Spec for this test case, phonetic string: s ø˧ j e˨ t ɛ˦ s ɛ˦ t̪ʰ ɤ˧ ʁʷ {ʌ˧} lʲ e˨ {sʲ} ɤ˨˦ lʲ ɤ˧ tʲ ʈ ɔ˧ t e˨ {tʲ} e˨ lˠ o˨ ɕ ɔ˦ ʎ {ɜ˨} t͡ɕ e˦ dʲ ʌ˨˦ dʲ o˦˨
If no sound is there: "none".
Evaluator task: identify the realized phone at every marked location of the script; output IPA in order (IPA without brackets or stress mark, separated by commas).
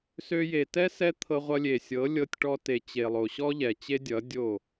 ʌ˧, sʲ, t͡ɕ, ɛ˨